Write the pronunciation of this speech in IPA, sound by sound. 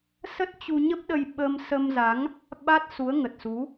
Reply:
s ə˦˥ t̚ t͡ɕ u˧ ɲ ə˦˥ p̚ ɗ ə˧ j ɓ ə˧ m s ə˧ m z a˨˦ ŋ | ɓ a˦˥ t̚ s u˨˦ ə̯ ŋ ə˨˩ t̚ s u˨˦

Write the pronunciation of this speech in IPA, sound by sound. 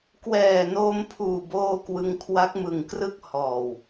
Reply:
k w ɛː˨˩ n oː˧ m pʰ uː˨˩ b oː˧ k w ɯ˧ ŋ kʰ w a˦˥ k̚ m ɯ˨˩ ŋ k r ɯ˥˩ k̚ h ɔː˨˩ w

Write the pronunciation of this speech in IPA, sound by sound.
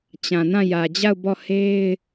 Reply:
t͡ɕ ã˨ n ã˦˨ j ä˨ d͡ʑ a˦˨ ʊ̯ b ɔ˦˨ h e˦ ɪ̯

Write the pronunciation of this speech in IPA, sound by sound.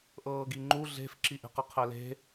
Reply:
ʔ ɤː ɡ i ŋ͡ǃ u ɮ e̤ f ǁ i ʔ e̤ q ə qʰ ɛ l e̤

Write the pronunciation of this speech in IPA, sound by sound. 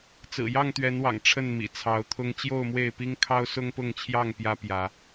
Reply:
t͡s ɹ̩˨˩ j ɑ˥˨ ŋ t̪ ɥ ɛ˨˦ n w ɑ̰˨˩ ŋ ʈ͡ʂʰ ə˥˨ n m ḭ˨˩ t͡sʰ ɑ˨˦ ʊ̯ t̪ʰ ʊ˦ ŋ t͡ɕ j o˥˨ ʊ̯ m w e˥˨ ɪ̯ p i˦ ŋ kʰ ɑ˦ ʊ̯ s ʊ˦ ŋ p ʊ˥˨ ŋ t͡ɕʰ j ɑ˥˨ ŋ p j ä˦ p j ä˨˦

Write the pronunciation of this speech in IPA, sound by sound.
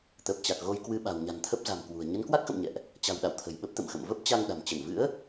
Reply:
t̪ əː˨˩ p̚ t͡ɕ a˨˩ k̚ ɣ o˧ j k w ɨ˧ ɓ a̤˨˩ w ɲ a̤˨˩ n t̪ʰ ə˦˥ p̚ z a̤˨˩ m k w ṳ˨˩ ə̯ ɲ ə˨˦ n k w a˦˥ k̚ x ə̰˧˨ m ɲ ɛ̰˧˨ ʔ | t͡ɕ a̤˨˩ w ɗ a̰˧˨ w t̪ʰ ə̤˨˩ j ɓ ə˦˥ p̚ t̪ ə̰˧˨ m x ə̰˧˨ m v ə˦˥ p̚ t͡ɕ a˧ ŋ ɗ a̤˨˩ m t͡ɕ ə˧˩ n v ɨ̰˧˥ ə̯

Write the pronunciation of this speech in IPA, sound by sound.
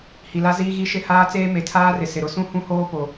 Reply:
h i˨ l a˦ z iː˦ ɣ i˦ ʃ ɪ˦ h aː˦ t͡s eː˦ m e˨ tʰ aː˦ r ɪ˨ s ɪ˨ ɾ ʊ˦ s ũ˦ h ũ˦ h oː˦ p o˨

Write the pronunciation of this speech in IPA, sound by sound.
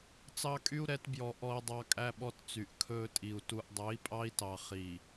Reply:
t͡s ɑ˦ kʼ y˦ u̯ ɾ ɛ˨˦ t b j ɔ˨ ʔ ɔ˨ i̯ dˤ ɑ˨ kʼ æ˦ ɓ ɔ˦ t t͡s y˨ ʔ kʰ ɵː˦ tʼ i˨ u̯ t u˨ ʔ dˤ ø˨˦ i̯ pʼ ɑ˦ i̯ t ɑ˨ χ i˨

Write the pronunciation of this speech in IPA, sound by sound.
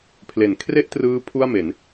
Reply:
pʰ l e˩˦ n kʰ r e˥˩ ʔ t r ɯː˦˥ pʰ u˥˩ a̯ m e˩˦ n

